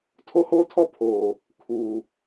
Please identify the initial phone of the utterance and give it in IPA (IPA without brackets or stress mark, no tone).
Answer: tʰ